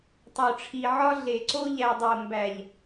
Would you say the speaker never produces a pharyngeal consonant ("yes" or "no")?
no